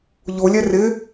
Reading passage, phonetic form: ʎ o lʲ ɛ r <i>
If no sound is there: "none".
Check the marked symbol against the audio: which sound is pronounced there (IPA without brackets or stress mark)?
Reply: ɪ